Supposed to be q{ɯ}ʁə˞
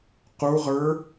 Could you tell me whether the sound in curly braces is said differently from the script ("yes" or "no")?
yes